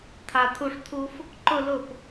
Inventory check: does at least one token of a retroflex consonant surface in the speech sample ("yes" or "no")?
yes